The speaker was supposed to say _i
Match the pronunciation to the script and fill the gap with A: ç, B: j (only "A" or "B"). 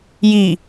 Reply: B